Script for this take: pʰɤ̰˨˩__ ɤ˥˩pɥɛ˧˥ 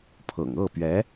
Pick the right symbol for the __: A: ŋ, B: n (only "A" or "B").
A